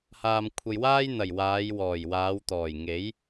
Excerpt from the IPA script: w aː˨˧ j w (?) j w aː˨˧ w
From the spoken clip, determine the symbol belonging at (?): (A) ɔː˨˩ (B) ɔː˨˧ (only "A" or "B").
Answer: A